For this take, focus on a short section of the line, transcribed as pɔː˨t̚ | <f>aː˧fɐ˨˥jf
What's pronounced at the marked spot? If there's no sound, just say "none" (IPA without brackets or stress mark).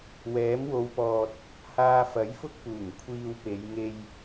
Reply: h